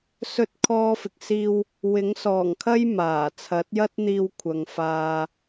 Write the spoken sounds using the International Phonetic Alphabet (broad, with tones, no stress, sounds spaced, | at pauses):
s ɵ˧ t̚ kʰ ɔː˧ f ɪ˨ k̚ s iː˧ w | w ɪ˨˥ ŋ s ɔː˨˩ ŋ kʰ ɐ˥ j m aː˨˩ t͡sʰ ɐ˨˥ t̚ j ɐ˥ t̚ n̪ iː˧ w kʷʰ ɐ˨ ŋ f aː˧